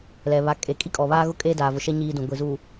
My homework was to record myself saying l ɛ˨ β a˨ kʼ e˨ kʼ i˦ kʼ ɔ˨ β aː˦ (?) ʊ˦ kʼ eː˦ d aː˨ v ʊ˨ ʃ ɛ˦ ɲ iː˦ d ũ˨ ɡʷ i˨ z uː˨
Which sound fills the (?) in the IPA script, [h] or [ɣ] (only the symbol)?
ɣ